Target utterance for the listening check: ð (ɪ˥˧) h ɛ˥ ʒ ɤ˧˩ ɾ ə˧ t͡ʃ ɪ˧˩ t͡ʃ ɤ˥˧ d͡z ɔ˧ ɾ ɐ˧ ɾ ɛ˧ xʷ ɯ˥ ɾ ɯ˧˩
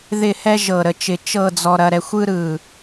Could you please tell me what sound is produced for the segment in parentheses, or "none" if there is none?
ɪ˥˧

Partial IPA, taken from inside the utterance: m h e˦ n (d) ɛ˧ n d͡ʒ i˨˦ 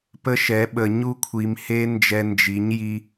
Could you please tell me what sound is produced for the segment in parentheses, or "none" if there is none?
d͡ʒ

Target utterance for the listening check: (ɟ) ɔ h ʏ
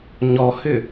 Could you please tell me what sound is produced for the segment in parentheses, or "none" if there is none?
ɲ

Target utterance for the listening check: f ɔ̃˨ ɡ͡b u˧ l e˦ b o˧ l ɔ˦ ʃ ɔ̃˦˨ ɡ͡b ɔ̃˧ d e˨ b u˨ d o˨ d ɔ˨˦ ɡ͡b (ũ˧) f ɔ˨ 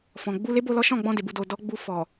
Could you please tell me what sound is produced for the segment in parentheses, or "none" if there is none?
u˧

